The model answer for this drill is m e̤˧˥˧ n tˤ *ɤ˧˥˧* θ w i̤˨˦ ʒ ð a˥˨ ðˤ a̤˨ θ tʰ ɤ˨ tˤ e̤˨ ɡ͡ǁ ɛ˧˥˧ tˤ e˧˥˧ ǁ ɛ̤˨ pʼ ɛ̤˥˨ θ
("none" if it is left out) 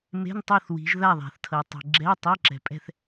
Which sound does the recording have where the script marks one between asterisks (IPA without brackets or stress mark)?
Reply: ɤ˥˨